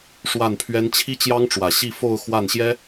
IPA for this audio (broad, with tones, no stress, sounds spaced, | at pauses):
ʂ w a˥˨ n pʰ ɥ ɛ˦ n t͡ɕʰ i˦ t͡ɕ j ɑ˦ ŋ ʈ͡ʂ w ä˨˩ ɕ i˥˨ f o˥˨ ʊ̯ x w a˥˨ n ɕ j ɛ˦